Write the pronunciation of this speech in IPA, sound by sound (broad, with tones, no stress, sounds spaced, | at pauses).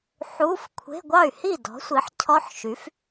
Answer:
ħ u˧˥˧ f kʷʰ e̤˧˥˧ ɡʷ ɑ˥˩ y̯ h i˥˩ d ɔ̤˩˥ sʷ i˩˥ ħ cʰ ɔ˦˥ ħ ʃ y˩˥ f